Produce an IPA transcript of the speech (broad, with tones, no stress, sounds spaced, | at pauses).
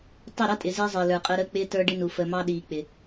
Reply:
tˤ ɪ˦˨ ɾ ʌ˦ tʼ ɪ˨ z ɪː˦ zˤ ɪː˨ l ə˞˨ qʼ əː˦ ɾ əː˦ k͡p ɪː˦ t ə˞˦ ɖ ɪ˦ n u˨ f əː˨ m ɑ˦ ɗ iː˨ k͡p ɪ˨